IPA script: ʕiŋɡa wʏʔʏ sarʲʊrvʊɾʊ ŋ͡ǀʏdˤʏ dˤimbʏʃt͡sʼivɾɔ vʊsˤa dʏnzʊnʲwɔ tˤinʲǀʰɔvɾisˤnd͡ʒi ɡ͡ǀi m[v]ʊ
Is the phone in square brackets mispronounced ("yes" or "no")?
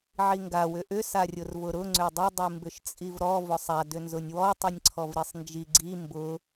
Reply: yes